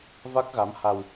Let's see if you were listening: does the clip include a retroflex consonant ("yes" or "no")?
no